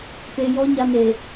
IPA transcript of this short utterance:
p e˨ j ɔ˦ ɲ a˦ n e˨

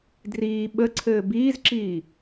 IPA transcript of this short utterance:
d r iː ɓ ə ǀʰ ɘː b iː z ǁ iː

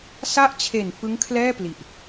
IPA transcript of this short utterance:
s a˦˥ ʔ t͡ɕʰ e˨˩ n f ɯ˦˥ ŋ kʰ l ɛː˥˩ p l i˨˩ ʔ

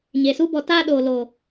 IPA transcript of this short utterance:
ɲ e˨ s u˦ b ɔ˧ t aː˦ ɗ oː˨ l o˨

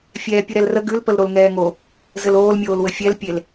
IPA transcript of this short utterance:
fʲ ɛː pʲ u ɾ ɛ l r ə ɡ ʉ l p ə l ɾ o l ŋ ɛː ŋ o | z ɘ l oː l mʲ oː l w ɘ fʲ ɛ l pʲ e l

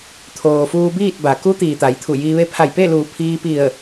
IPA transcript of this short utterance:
t̪ʰ oː˩ f uː˧ b iː˥˨ t̚ b a˩˧ k u˧˥ t̪ iː˩ t̪ a˩˧ j t̪ʰ u˧˩ j iː˧ ʋ e˧ pʰ a˧˩ j p e˥˨ l uː˧˩ pʰ iː˧ p i˧˩ ə̯

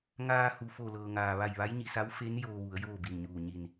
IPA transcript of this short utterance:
ŋ aː˧ h u˩ f o˧˩ l ɤː˩ ŋ aː˩ ʋ a˧˩ j ʋ a˧˥ j ɲ i˩˧ s a˧˥ w f e˧˥ n j oː˧ ʋ u˩˧ ə̯ j oː˥˨ b i˧˩ n ɲ uː˧˩ ɲ i˧˩ n

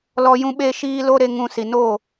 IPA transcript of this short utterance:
l ɔ˦ j ũ˦ ɓ e˦ ʃ iː˦ l o˦ ɾ e˧ ŋ ũ˧ s i˨ n oː˦˨

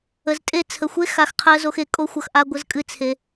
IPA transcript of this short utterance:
ə˨ z tʼ e˦ t͡sʰ ə˨ xʷ e˦ x a˨ x qʰ ɜ˧ z o˧ x e˧ kʼ o˦ xʷ ʌ˧ x ʔ a˦ ɡʷ ə˦ z kʼ ɨ˦˨ t͡sʰ e˧

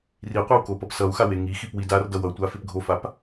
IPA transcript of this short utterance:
r i qʷ a w k o p ʌ p s ʌ u̯ x a w e ŋ i x i p w i d a r d ʌ w ʌ tʷ a f e p ɡʱ o f a p

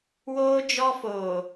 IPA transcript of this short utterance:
w oː˦ d͡ʒ ɔ˦ f oː˨

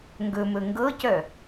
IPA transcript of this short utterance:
ŋ ɡ ɵ m ɵ ŋ ɡ ɤ c œ

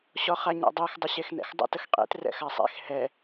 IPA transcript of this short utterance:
ɕ ɔ χ a ɲ ɛ̰ dˤ e x dˤ ə ɕ e x n ɛ̰ x dˤ ə̰ t ə x qʼ ḛ t r ɛ̰ x a sˤ ḛ x h ɛ

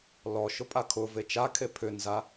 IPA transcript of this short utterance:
l ɔ ʃ ʊ pʼ a kʰ ʊ v e t͡ʃ a kʰ e pʰ ʏ n z a

